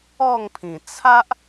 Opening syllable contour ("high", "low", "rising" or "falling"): falling